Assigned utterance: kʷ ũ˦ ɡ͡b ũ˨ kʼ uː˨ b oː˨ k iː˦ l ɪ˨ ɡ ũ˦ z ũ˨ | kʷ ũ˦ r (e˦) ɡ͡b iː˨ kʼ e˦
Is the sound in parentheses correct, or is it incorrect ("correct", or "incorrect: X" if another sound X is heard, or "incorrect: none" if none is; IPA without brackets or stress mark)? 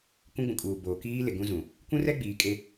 incorrect: ɛ˦